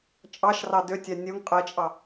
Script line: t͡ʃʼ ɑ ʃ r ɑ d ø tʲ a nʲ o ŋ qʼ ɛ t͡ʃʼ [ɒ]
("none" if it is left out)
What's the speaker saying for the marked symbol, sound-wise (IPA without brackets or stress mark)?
ɑ